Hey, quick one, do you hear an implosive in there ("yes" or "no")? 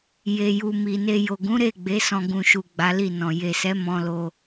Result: no